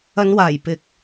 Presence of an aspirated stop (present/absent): absent